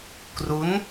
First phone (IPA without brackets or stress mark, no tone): k